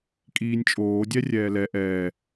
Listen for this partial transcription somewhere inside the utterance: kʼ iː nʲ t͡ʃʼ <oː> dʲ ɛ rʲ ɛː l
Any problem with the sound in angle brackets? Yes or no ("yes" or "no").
no